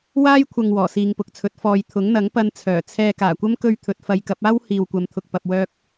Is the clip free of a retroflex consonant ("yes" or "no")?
yes